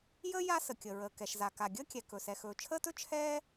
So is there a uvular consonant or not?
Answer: no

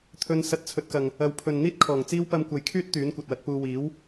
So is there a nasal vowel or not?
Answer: no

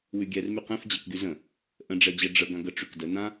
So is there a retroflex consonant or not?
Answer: yes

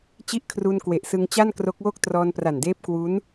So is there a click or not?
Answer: no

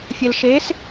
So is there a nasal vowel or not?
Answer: no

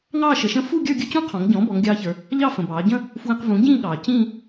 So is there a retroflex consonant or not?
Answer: no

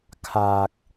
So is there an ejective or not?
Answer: no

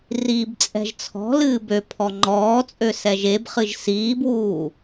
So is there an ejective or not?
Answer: yes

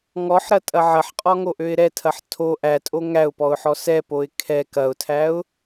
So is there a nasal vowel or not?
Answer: no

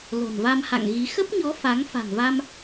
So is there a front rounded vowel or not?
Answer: no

